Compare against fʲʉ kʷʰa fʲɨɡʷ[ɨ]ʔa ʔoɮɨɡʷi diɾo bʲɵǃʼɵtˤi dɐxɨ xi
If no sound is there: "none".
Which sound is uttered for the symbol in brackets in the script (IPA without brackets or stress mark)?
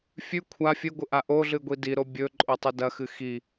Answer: ɨ